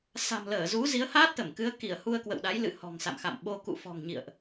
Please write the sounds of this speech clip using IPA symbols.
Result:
s a̤˨˩ m l əː˧˩ z u˨˦ z i˨˦ ə̯ h aː˦˥ t̚ t̪ ə˧˩ m k ɨ˨˦ ə̯ k i˧˩ ə̯ h u˧ ə̯ k w ə̰˧˨ w ɗ a˨˦ j l ɨ̰˧˨ h ɔ̤˨˩ ŋ s a̰˧˨ m x a̰˧˨ m ɓ o˧ k ṵ˧˨ f ɔ̤˨˩ ŋ ɲ ḭ˧˨ ə̯ ʔ

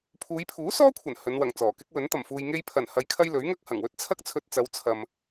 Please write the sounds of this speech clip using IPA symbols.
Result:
pʰ uː˨˧ j pʰ uː˨˥ s ɔː˥ kʷʰ ɐ˨˩ n h ɵ˨˧ n w ɐ˨˩ ŋ t͡s ɔː˨˩ k ɪ˥ k̚ w ɵ˨˥ n t̪ ɐ˨˩ m f uː˨ j ŋ e˧ j pʰ ɐ˨˩ n h ɐ˨ j kʰ ɐ˧ j l ɵ˨˥ ɥ ŋ ɐ˥ k̚ h ɐ˨˩ ŋ w ɵ˥ t̚ t͡sʰ ɐ˥ k̚ t͡sʰ ɵ˧ t̚ t͡s ɐ˨˧ w t͡sʰ ɐ˨ m

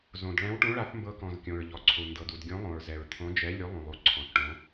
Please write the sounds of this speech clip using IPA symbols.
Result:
z õ˩ d ɭ ɛ̃˨˥ w ʈ ũ˨˥ ɭ a˨˥ θ m b ɤ˨˥ k ɔ̃˩ z kʲ õ˩ ɹ ʎ ɔ˩ ǀʰ u˩ n d ɤ˩ d u˩ d ɡʲ õ˨˥ lˠ õ˩ ɹ z ɛ˩ ɹ t̪ʰ õ˨˥ d͡ʒ ɛ˨˥ lʲ u˨˥ lˠ ũ˩ lˠ u˩ ǀʰ ɔ̃˩ θ ʈ õ˨˥

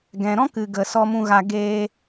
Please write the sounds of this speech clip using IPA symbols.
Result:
ɡ ɛ̃˨ ɾ ɔ̃˦ k ɨ˨ ɡ ə˨ s ɔ˨ m ũ˨ ɣ a˨ ɡ eː˧

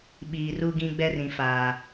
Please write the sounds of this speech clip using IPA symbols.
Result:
ɓ iː˨ r u˦ ɡ ĩ˦ ɡ͡b ɛ˦ r ĩ˨ f aː˨

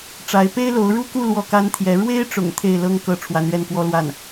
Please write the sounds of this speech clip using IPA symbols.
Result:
ʈ͡ʂ a˧˥ ɪ̯ p e˥ ɪ̯ l o˧˥ ʊ̯ ɻ u˥ k u˥˧ l w ɔ˥˩ k a˥ n t̪ʰ j ɛ˧˥ ɻ w e˥ ɪ̯ ʈ͡ʂ ʊ̰˨˩ ŋ t̪ʰ e˥˩ ɪ̯ l ɤ˥ ŋ k ɤ˥ ʈ͡ʂʰ w a˧˥ n ɥ ɛ˥˩ n k w ɔ˥ l w a˥˩ n

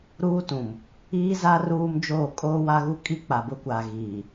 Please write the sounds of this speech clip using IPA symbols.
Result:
ɾ uː˦ t ũ˨ m | iː˦ z a˦ r uː˦ m d͡ʒ oː˦˨ kʼ oː˦ w a˦ ɣ u˦ kʼ i˦ k͡p a˨ b ʊ˦ kʷ aː˨ ɣ iː˨

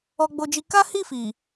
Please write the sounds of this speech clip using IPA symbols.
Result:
ɔ˧ ɡ͡b o˧ d͡ʒ i˧ k a˦ h i˦˨ f i˨

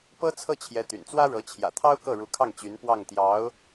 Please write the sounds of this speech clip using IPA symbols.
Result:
p ɤ˥ t͡sʰ ɤ˥˩ t͡ɕʰ j ɛ˧˥ t̪ y̰˨˩ n t͡s w ä˥ ɻ ɤ˧˥ t͡ɕʰ j ä̰˨˩ t̪ʰ ɑ˥ ʊ̯ k ɤ˥˩ ɻ u˧˥ kʰ ɑ˥˩ ŋ t͡ɕ y˧˥ n p w ɑ˥˩ ŋ t̪ j ɑ˧˥ ʊ̯

